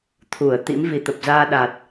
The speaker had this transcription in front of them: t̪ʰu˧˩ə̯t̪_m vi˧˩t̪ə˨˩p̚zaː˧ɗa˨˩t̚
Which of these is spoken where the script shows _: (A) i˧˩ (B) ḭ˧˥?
B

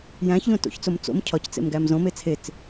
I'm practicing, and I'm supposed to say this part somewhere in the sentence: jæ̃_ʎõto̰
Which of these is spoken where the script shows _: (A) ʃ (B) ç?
B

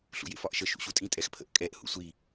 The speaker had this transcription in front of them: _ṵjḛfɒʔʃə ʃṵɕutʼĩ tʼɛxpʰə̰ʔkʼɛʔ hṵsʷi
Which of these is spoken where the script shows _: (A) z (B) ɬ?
B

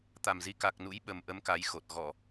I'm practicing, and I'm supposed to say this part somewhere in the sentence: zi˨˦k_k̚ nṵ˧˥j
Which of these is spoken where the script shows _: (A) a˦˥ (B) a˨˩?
B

